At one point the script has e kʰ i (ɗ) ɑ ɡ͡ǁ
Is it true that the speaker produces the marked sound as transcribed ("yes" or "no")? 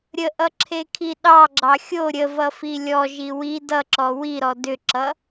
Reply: yes